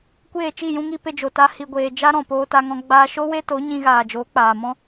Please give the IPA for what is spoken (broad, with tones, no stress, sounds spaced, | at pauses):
kʷ eː˦˨ t͡ʃ i˦˨ j ũ˧ ŋ i˧ p e˧ d͡ʒ o˨ t a˧ h i˨ ɡʷ eː˨ d͡ʒ a˦ ɾ ɔ̃˨ p oː˧ t a˧ ŋ ɔ̃˧ ɡ͡b aː˧ ʃ o˦ w e˦ t o˨˦ ɲ ĩ˧ ɣ aː˨ d͡ʒ oː˨˦ k͡p aː˨ m ɔ̃˦